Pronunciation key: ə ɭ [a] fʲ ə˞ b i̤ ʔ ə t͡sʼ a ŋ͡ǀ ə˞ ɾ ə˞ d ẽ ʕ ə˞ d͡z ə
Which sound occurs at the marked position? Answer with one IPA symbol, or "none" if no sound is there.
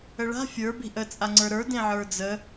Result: a̤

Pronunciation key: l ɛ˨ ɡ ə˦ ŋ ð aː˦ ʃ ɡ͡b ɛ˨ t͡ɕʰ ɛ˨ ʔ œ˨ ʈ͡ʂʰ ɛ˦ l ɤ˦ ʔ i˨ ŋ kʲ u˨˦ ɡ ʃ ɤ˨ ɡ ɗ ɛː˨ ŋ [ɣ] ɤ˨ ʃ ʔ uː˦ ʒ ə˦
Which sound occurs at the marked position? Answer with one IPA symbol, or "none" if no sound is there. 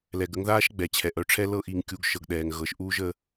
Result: ɣ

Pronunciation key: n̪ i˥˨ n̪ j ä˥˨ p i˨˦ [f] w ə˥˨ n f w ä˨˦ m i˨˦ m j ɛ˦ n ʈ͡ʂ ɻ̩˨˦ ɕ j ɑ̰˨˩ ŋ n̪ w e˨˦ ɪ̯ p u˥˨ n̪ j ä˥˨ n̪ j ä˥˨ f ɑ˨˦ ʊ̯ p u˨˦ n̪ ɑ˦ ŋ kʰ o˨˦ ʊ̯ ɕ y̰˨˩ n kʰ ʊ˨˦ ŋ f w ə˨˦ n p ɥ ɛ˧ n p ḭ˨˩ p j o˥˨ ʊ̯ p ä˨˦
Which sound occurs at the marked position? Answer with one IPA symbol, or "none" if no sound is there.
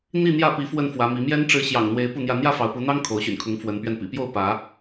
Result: f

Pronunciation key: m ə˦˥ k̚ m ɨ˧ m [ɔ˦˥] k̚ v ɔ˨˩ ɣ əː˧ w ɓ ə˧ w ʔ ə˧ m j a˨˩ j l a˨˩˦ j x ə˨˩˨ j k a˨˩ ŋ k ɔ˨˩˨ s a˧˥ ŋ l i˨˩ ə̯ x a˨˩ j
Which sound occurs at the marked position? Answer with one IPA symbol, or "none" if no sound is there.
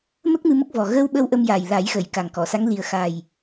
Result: ə˦˥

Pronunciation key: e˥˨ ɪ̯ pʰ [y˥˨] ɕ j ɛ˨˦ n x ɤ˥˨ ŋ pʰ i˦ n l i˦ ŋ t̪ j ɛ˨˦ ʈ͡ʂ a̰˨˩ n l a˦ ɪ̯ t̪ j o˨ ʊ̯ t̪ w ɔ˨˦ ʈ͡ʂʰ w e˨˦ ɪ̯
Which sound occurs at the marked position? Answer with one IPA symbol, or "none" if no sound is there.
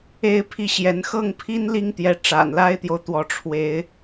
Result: i˥˨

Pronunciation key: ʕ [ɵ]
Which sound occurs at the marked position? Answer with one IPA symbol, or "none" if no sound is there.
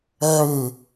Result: ɵ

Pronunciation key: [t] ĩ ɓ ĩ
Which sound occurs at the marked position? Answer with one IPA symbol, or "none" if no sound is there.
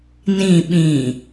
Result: n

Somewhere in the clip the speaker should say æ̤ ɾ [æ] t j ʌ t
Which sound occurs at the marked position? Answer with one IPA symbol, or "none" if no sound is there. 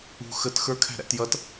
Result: æ̰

